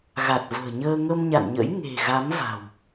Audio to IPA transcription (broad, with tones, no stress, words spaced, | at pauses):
ɣa˨˩t̚və̤ː˨˩ ɲəː˧ ŋə˧mɲa̰˧˨nɲə̰˧˥j ŋe̤˨˩ ɣa˨˦mva̤˨˩w